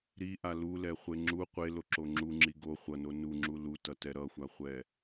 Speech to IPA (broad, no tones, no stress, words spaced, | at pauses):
ɾiʔa lulɛχʷe ŋ͡ǁu qʷeloǁo ŋ͡ǁuŋ͡ǁi ɡo χʷʌno nuŋ͡ǁu lutʌtɛ ɾʌxʷaχʷɛ